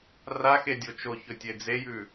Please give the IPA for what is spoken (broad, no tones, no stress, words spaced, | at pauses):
raxedʲo t͡ʃoçɵtʲe d͡zejʉ